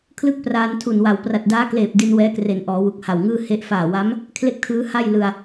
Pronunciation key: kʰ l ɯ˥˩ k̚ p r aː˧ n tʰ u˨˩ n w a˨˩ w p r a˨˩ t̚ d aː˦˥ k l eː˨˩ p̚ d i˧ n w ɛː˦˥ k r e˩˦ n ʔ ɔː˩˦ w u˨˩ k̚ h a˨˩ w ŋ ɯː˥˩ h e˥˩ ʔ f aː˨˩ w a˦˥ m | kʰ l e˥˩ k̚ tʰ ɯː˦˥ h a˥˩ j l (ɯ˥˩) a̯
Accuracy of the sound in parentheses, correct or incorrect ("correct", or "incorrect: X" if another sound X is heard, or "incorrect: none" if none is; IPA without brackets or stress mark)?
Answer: incorrect: ɯ˧